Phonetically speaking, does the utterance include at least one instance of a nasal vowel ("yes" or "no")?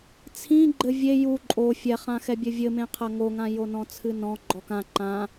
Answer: yes